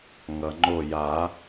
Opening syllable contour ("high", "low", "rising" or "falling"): low